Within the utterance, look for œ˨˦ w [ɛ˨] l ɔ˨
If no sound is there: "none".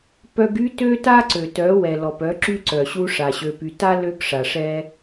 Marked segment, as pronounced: ɛ˨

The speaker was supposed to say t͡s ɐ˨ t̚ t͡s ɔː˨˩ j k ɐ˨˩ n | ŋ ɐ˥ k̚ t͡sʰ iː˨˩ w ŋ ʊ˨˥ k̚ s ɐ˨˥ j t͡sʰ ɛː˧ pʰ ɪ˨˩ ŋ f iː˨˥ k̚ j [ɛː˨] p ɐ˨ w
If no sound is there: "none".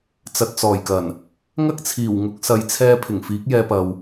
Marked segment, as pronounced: ɛː˧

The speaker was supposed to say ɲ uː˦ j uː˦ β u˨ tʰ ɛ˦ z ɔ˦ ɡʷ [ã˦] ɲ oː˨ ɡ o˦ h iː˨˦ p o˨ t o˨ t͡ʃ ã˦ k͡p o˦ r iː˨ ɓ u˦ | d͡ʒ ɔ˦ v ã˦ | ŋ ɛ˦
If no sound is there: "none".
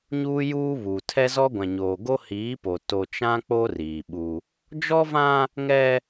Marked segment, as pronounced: ã˨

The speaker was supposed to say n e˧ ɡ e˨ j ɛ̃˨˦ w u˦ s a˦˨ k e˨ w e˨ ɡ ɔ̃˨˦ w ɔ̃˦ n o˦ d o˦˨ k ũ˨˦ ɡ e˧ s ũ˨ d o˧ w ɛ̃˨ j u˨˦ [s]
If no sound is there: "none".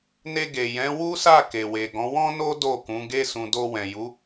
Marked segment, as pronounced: none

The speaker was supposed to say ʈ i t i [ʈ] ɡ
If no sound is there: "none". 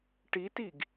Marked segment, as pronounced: none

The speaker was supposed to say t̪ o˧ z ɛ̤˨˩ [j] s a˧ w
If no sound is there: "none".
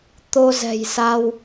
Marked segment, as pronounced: j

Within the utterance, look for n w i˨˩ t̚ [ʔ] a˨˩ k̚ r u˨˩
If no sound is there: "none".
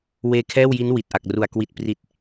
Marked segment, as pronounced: ʔ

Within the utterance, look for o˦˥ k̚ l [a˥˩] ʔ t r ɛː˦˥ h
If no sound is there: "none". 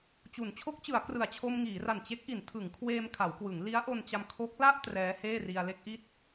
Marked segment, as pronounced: a˥˩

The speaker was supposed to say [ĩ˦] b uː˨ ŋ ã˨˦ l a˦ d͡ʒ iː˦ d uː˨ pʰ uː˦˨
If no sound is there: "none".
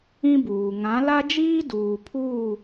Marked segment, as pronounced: ĩ˦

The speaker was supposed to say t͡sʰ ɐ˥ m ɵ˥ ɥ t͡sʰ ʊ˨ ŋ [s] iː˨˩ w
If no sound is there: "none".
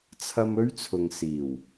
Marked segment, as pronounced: s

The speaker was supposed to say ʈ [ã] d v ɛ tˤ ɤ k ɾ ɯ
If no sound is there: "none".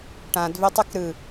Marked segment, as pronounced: ã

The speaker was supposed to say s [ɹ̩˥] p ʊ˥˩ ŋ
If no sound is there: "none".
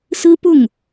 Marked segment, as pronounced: ɹ̩˥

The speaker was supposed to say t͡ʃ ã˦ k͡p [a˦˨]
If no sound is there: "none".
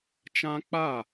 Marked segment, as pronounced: a˦˨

